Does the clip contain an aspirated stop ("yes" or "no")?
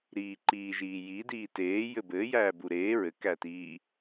no